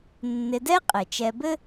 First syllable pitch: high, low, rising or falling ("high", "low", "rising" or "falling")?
low